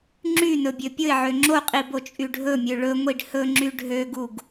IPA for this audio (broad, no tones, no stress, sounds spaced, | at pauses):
ŋ͡ǁ y n ɵ bʲ ø pʲ ɵ ɪ̯ ʕ ø ŋ͡ǁ o qʼ i b o t͡ʃʼ y ɖʱ ɵ mʲ ø ɭ ɵ ŋʷ i ɖ h ɵ ŋ͡ǁ y ɖʱ ø ɡ u ɡ